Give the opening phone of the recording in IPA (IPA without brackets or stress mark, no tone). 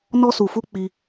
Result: n